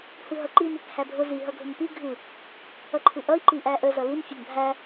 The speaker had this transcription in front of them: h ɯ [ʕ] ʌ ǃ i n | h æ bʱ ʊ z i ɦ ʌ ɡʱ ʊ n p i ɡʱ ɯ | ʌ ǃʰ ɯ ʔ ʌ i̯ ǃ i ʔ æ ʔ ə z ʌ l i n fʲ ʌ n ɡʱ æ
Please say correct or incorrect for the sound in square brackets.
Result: incorrect